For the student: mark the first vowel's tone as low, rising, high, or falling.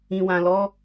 low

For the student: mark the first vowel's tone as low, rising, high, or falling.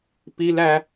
high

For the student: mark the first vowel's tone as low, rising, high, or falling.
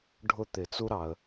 falling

